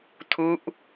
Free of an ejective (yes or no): yes